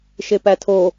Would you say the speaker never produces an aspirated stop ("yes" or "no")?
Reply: no